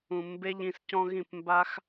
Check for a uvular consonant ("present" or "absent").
absent